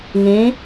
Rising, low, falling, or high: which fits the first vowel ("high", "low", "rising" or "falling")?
rising